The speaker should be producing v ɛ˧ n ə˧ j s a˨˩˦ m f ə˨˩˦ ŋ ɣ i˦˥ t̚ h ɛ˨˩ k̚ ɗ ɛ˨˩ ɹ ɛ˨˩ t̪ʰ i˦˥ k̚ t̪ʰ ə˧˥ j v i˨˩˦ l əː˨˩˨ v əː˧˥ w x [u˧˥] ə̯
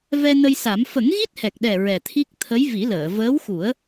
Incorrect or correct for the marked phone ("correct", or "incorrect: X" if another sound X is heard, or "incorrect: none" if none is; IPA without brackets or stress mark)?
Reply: incorrect: u˨˩˦